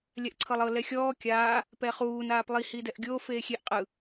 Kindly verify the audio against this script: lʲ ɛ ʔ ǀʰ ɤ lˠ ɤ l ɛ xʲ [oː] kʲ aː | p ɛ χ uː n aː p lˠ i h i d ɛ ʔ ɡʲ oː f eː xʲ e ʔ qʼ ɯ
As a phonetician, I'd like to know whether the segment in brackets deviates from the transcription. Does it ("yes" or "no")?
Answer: yes